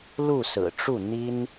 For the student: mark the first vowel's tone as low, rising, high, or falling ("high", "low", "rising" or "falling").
falling